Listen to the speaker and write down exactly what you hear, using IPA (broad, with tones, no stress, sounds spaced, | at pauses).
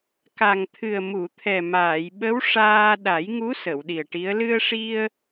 k a˨˩ ŋ t̪ʰ ɨ˨˩ ə̯ m u˨˩˨ t̪ʰ ɛ˨˩ m aː˨˩˨ j ɓ ə˧˥ w ʂ aː˧ ɗ a˨˩˦ j ŋ u˧˥ s ə˨˩˨ w ɗ i˨˩ ə̯ ʈ i˧˥ ə̯ l ɨ˧ ə̯ ʂ i˧ ə̯